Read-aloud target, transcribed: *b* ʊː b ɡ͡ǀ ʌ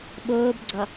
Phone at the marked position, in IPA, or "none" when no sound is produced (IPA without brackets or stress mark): ɓ